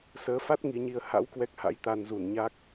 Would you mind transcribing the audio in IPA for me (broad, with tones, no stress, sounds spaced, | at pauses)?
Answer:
s əː˨˦ f a˦˥ t̚ ŋ i˨˦ ɲ i˧ ə̯ h a̰˧˥ w k w ɛ˦˥ k̚ h a̰˧˥ j t̪ a˧ n z u˧˩ n ɲ a˦˥ k̚